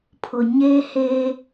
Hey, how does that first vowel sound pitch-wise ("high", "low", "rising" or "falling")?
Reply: low